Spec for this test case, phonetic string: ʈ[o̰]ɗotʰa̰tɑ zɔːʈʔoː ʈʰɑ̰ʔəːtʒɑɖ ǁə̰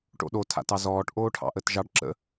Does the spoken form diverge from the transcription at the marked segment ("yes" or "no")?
no